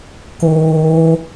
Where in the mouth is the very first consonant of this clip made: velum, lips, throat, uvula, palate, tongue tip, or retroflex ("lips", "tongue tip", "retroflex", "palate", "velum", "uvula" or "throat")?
velum